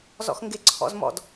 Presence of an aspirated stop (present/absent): present